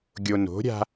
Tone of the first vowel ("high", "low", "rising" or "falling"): low